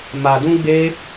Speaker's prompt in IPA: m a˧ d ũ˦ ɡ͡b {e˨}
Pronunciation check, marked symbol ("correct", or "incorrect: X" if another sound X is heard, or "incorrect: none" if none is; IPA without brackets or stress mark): incorrect: e˦